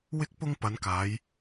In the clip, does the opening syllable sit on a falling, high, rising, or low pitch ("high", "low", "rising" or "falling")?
high